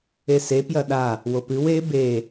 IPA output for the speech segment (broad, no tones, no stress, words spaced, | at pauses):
ese pjɐɗa | wopɨw e be